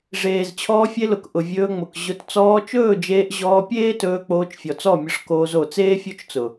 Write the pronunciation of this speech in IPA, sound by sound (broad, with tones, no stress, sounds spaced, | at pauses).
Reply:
ʐ eː˨ z t͡ɕʰ ɔː˧ fʲ e˧ l ʊ˨ k ʔ ʊ˨ vʲ ɵː˧ ŋ͡m ʊ˨ k ʑ ʊ˧ t t͡s ɔː˧ t͡ʃ ɵː˦˨ d͡ʒ eː˧ ʔ ʑ ɔː˧ pʲ eː˦ t ɵː˧ k͡p oː˧ t͡ʃ fʲ ɔ˨ t͡s ɔ˦˨ mʲ ʊ˧ ʂ k oː˧ z o˨ t͡s eː˦ fʲ o˦ t͡ʃ t͡s ʊ˨